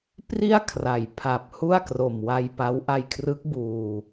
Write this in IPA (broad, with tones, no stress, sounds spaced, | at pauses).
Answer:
p r i˥˩ a̯ kʰ r a˨˩ j pʰ a˨˩ p̚ h u˥˩ a̯ k r o˨˩ m w a˧ j p a˦˥ w ʔ a˧ j kʰ r ɯ˦˥ k̚ b uː˧